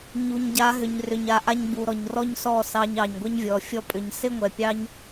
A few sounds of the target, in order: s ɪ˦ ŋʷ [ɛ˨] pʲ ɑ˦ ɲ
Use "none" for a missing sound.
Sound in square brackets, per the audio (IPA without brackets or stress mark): ɛ˨